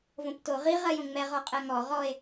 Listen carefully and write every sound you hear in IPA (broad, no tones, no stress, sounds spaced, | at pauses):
v õ p t o ʁ i ʁ ɜ j õ ŋ͡m ɛ ʁ ɔ qʼ ɜ ŋ ɔ ʁ ɔ e̯